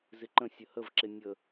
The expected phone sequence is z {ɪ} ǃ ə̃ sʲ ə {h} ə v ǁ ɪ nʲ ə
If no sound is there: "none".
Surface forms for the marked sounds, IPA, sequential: ɪ, h

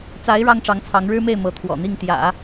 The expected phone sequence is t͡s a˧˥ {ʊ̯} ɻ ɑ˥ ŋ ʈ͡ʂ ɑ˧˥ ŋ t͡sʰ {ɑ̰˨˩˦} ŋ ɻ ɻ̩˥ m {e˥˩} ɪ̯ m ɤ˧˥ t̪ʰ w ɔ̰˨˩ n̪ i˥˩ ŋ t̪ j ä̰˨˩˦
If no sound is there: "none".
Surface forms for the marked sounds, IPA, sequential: ɪ̯, ɑ˧˥, e˥˩

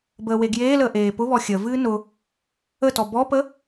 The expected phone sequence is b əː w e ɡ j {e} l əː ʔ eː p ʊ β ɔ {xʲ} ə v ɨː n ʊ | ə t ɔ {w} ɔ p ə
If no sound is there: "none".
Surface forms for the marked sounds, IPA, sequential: eː, xʲ, b

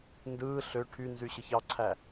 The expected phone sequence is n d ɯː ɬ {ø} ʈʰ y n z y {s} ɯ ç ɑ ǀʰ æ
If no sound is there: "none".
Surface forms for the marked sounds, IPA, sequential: ø, ɕ

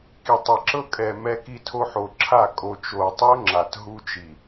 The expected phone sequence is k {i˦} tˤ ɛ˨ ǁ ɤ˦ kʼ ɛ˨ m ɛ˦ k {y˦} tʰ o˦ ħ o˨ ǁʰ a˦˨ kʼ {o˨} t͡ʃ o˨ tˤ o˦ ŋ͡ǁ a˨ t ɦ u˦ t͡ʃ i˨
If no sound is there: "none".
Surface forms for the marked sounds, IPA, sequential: i˨, i˦, o˨

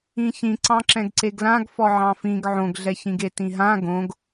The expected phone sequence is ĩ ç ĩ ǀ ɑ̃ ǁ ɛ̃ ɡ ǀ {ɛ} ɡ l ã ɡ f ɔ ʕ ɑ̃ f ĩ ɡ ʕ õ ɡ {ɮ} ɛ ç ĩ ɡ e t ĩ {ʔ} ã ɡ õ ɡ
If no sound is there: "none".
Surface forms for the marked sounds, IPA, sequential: e, ɮ, ɦ

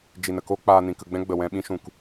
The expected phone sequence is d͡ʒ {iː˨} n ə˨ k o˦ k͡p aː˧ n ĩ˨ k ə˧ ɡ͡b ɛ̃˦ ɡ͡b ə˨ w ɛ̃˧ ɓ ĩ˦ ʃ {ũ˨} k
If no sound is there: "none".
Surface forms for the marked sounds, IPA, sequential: i˨, ũ˨

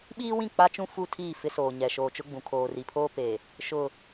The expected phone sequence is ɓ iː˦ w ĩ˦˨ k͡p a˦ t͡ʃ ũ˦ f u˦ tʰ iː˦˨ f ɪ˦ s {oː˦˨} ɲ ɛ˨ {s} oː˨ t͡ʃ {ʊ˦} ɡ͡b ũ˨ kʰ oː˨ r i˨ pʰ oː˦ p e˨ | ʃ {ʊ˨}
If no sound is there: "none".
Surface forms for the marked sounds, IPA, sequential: oː˨, ʃ, ʊ˦, ʊ˦

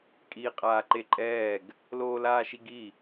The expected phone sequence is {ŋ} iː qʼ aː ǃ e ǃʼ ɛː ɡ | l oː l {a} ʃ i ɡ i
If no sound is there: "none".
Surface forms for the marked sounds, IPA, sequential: kʼ, aː

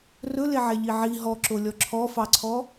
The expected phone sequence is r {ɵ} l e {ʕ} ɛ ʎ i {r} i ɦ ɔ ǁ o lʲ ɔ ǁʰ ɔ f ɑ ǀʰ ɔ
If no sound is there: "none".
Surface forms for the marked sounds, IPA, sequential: ɵ, ʕ, ʕ

